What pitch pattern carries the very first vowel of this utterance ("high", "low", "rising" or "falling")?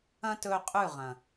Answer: high